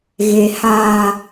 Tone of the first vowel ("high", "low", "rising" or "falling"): low